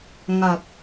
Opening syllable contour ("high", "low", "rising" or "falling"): low